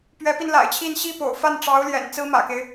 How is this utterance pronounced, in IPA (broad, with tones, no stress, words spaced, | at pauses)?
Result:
pɥɛ˧˥pi˧nla̰˨˩ɪ̯t͡ɕʰi˥˧n ɕi˥˩po̰˨˩ʊ̯fa˥˩n ʈ͡ʂɑ˧˥ʊ̯ljɛ̰˨˩n t͡sɹ̩˥mä̰˨˩ke˦ɪ̯